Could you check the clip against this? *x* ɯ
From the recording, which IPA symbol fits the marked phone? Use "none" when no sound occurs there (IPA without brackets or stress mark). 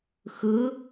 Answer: x